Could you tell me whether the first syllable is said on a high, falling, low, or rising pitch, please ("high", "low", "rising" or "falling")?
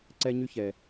high